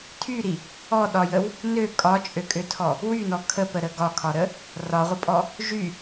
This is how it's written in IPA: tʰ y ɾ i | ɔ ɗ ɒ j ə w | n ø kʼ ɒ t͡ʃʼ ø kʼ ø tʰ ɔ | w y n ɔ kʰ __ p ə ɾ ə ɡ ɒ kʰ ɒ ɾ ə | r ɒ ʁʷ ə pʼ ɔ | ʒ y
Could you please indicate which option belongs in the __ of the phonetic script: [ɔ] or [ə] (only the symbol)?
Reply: ə